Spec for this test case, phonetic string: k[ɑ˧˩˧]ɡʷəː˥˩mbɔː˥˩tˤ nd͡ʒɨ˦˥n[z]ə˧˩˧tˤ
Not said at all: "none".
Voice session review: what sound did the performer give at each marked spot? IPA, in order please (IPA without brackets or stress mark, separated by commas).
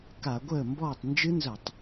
a˧˩˧, z